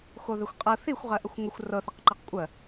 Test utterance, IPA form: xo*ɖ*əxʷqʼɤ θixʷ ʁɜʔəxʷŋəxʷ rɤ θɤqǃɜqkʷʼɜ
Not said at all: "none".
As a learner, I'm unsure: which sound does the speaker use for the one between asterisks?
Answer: ð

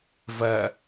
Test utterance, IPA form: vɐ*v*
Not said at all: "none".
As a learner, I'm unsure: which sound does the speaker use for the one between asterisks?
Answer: none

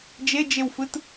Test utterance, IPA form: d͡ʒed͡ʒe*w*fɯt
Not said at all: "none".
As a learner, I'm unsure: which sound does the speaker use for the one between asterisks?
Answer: w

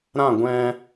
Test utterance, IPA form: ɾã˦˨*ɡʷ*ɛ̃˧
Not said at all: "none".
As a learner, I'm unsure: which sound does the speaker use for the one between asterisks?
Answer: ɡʷ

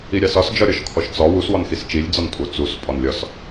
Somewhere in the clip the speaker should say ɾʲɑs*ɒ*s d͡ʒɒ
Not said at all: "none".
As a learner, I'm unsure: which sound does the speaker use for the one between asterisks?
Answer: ɒ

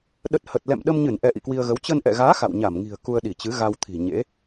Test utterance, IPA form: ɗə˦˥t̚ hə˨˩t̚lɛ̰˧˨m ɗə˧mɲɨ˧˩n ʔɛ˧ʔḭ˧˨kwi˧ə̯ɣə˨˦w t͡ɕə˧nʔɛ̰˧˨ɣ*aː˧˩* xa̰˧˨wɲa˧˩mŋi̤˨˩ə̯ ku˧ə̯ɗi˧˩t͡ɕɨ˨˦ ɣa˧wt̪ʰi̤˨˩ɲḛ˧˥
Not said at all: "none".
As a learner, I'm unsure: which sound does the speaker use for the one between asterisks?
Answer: aː˨˦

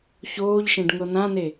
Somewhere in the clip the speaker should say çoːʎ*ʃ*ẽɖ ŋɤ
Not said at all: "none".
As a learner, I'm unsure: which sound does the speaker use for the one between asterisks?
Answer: ʃ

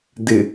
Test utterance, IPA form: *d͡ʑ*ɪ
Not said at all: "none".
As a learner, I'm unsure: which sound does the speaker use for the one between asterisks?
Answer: d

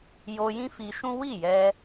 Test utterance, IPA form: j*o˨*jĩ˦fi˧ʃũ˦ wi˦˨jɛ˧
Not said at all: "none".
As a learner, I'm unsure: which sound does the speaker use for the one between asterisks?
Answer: o˧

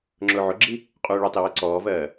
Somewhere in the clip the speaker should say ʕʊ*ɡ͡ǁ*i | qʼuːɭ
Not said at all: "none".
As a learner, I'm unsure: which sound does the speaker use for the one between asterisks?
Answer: ɡ͡ǁ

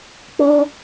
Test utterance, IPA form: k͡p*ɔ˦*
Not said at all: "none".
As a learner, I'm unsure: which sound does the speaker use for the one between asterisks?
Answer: ɔ˦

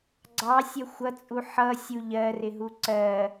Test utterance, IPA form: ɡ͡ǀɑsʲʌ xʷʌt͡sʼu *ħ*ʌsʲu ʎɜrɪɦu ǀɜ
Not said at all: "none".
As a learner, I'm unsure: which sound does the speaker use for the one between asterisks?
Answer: ħ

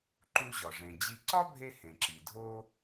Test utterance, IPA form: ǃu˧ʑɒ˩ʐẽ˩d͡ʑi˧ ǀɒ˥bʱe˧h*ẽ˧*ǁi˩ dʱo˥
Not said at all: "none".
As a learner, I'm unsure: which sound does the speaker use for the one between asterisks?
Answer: ẽ˩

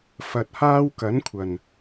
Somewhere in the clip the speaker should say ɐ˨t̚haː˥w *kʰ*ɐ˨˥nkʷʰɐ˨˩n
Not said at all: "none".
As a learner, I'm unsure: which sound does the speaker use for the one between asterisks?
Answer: k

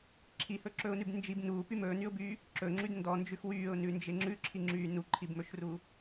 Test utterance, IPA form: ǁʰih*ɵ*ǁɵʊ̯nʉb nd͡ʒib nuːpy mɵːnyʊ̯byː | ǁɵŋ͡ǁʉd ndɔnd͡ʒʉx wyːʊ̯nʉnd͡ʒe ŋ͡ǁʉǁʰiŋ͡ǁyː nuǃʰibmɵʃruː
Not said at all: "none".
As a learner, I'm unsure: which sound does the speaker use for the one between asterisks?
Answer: ɵ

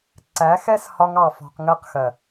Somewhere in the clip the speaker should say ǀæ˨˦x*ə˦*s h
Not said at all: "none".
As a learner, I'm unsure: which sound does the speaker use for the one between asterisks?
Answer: ɛ˦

